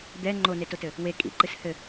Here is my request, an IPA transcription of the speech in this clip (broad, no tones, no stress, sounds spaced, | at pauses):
d̪ ɛ ŋ͡ǃ o n e t o t ɘ | w e kʼ ḭ ǃ ɨ s h ɘ